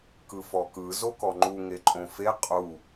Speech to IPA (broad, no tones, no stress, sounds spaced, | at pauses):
k ɯ f ɔ k ɯ z o k ɔ ŋ͡ǃ u ŋ e ǃʼ õ f e qʼ u